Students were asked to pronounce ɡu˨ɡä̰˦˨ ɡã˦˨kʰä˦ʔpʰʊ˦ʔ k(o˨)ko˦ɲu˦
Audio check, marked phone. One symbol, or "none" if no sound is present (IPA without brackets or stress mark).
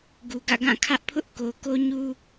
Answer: o˨